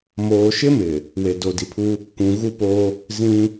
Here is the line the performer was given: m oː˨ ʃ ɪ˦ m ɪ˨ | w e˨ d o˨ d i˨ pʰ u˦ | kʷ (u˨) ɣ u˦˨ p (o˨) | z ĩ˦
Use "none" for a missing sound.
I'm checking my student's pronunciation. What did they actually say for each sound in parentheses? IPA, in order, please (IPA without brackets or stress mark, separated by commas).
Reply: ũ˨, o˦